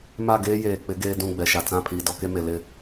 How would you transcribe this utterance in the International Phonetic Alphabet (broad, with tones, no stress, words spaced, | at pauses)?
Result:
ma˦˨ɡeː˦jeː˨k͡pɪ˨˦ ɡeː˦dũ˦˨ ɡ͡bɛ˨ʃa˨ t͡sã˦˨pʰiː˨ dɔ˦ke˦me˨ lɪ˦˨